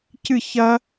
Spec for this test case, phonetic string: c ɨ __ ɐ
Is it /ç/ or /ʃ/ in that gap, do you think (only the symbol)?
ç